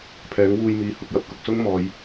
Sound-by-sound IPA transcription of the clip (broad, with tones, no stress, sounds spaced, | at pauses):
pʰ ɛː˨˥ ŋ w uː˧ j m iː˨˧ h ʊ˨ k̚ j ɐ˧ p̚ k ʊ˨ k̚ s ʊ˥ ŋ m ɔː˨˧ j